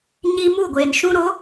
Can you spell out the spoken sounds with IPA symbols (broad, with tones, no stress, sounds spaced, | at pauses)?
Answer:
ɲ iː˦ m u˦˨ ɡʷ eː˨ n ʃ ũ˦ ɾ o˨˦